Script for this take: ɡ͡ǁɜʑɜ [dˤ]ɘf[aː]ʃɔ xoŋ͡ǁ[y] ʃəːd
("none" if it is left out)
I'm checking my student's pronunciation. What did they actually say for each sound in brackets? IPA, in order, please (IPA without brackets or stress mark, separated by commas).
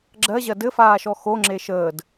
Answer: d, aː, e